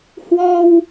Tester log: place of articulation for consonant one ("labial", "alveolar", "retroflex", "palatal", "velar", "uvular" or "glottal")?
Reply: glottal